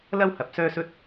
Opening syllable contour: high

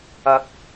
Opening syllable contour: rising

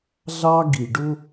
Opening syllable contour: high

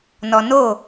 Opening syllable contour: low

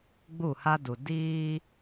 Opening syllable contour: falling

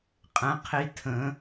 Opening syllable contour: rising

